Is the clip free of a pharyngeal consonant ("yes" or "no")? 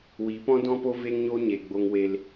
yes